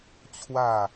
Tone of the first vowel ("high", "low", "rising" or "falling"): falling